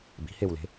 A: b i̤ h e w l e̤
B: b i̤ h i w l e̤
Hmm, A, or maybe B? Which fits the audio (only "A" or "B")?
A